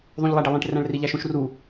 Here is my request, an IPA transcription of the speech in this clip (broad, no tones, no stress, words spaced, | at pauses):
ðˤũʎlˠæɖelˠĩʈ ræ̃ɭriʎæʃũʃ ru